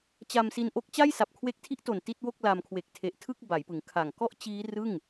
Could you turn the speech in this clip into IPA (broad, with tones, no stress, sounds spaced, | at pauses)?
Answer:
t͡ɕ a˧ m s i˧ n ʔ o˦˥ k̚ t͡ɕ a˥˩ j s a˨˩ p̚ kʰ w e˦˥ k̚ tʰ i˦˥ ʔ t o˨˩ n t i˥˩ t̚ w o˥˩ k̚ l a˧ m kʰ w e˨˩ k̚ tʰ e˨˩ ʔ tʰ ɯ˥˩ k̚ b a˩˦ j p ɯ˩˦ ŋ kʰ a˨˩ ŋ k ɔ˥˩ ʔ t͡ɕ iː˦˥ r ɯ˥˩ ŋ